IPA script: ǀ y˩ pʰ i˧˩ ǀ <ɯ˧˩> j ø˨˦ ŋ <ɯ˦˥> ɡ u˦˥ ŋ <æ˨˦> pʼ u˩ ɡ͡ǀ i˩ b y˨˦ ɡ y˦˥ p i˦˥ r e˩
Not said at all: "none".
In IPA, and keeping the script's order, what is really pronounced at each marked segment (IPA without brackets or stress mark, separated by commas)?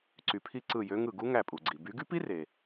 ɯ˧˩, ɯ˧˩, æ˧˩